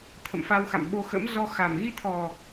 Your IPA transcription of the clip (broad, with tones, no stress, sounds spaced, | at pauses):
t̪ʰ ə̰˧˨ m f a˧ w x a̰˧˨ m ɓ o˧ x ə̰˧˥ m z ɔ˧ x a˨˩ m ɣ i˧ t̪ʰ ɔ˨˩